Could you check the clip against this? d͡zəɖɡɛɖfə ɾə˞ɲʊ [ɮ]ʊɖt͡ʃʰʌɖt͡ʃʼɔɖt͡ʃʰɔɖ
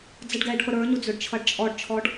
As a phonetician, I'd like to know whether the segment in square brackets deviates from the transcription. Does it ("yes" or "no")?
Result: yes